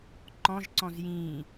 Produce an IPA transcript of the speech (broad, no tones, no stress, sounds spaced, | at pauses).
ǃ ɔ̃ ʒ ǀ ɔ̃ z j ĩ